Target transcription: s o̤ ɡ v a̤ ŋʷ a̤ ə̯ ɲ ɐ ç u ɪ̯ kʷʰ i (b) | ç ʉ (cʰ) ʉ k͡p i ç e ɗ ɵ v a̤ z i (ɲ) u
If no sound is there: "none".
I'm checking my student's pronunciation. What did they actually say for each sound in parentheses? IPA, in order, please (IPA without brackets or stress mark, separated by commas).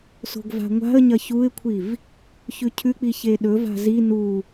v, cʰ, n